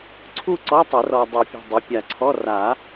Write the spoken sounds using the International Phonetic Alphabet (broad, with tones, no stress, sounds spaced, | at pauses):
ǀʰ u˥˧ ǀ ɔ˧˥˧ tˤ ə˨˩˦ r ɔ˨ dˤ o˨˩˦ pʲ o̤˨ dˤ ə˩˥ pʲ a˨ ǀʰ ɔ˧˥˧ r a˨˩˦